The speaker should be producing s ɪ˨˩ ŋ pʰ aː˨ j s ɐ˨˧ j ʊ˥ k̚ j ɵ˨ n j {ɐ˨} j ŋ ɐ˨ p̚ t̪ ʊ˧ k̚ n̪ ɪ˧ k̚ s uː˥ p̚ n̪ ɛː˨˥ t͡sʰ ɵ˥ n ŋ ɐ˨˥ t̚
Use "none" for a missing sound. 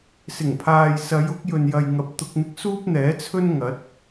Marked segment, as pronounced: ɐ˨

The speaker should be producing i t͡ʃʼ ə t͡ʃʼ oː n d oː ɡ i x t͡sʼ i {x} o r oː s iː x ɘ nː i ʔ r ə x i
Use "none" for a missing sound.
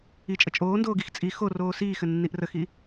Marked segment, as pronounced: x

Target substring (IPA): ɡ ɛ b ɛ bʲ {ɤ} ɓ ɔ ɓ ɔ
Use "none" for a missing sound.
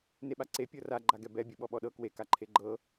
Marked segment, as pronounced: ɤ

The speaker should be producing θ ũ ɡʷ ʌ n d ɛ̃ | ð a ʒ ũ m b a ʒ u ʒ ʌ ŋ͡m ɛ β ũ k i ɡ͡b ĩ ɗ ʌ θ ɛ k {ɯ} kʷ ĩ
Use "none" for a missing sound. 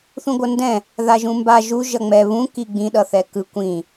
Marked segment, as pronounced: ɯ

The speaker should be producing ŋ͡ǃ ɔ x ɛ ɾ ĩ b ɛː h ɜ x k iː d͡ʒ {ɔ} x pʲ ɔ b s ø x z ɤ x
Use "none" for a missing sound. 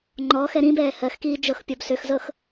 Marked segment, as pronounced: ɤ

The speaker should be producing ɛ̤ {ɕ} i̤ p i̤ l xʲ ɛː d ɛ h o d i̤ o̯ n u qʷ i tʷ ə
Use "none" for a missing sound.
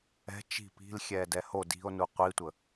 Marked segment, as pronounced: t͡ʃ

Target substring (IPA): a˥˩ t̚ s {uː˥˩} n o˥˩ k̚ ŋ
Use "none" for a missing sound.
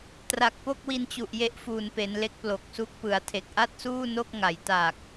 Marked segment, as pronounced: uː˥˩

